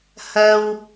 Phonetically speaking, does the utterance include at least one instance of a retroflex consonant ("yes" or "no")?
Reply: no